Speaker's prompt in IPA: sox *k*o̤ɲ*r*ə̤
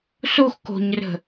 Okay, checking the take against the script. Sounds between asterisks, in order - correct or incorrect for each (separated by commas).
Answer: correct, correct